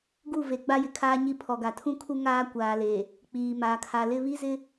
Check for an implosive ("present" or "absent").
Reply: absent